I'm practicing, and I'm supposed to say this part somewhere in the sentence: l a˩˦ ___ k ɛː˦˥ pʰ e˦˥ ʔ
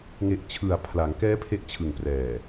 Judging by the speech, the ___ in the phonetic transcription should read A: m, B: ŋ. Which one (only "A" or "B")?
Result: B